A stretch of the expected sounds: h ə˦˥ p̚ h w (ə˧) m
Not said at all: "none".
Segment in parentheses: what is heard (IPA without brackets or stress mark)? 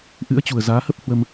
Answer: ə˧